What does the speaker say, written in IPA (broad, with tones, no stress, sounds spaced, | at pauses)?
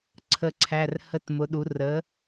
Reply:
ǀʰ ə˥˧ ǀʰ æ˧˥˧ r h ə˧˥˧ t m ʊ˨˥ ɗ u˨˥ r ə˨˥